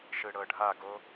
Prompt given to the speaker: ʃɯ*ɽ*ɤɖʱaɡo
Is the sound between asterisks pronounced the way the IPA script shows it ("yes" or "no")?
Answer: yes